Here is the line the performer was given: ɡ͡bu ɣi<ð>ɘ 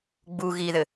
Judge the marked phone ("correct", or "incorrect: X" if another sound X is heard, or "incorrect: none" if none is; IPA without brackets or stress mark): correct